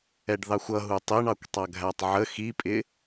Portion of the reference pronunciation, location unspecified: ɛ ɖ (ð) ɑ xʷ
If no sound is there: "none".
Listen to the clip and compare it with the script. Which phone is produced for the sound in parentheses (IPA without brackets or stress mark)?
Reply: ð